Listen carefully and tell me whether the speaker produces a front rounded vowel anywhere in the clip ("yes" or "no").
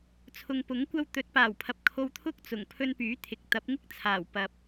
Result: yes